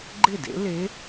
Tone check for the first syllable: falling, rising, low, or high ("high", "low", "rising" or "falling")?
falling